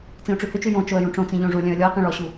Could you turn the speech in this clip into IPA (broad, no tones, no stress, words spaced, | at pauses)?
t͡sĩʊ̯ʈ͡ʂʉhʏt͡ʃʉ jõ t͡ʃoə̯jũʈ͡ʂõt͡sĩ ʎõʐulʲœ̃ə̯ lʲɔɪ̯qĩ ɭɔɕu